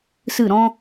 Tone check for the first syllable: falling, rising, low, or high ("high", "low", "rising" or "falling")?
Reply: falling